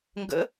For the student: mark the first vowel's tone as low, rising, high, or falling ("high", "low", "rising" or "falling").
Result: rising